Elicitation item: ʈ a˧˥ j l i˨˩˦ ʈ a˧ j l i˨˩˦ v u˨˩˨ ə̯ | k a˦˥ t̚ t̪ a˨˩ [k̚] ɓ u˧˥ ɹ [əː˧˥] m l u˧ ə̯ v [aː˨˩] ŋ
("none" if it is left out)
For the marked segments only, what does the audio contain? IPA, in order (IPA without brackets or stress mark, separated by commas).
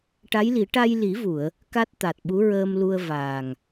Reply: t̚, əː˧, aː˨˩